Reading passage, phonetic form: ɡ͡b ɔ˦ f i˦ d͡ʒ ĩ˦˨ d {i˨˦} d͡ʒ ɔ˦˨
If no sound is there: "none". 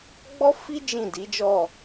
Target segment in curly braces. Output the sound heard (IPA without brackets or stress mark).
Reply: i˨˦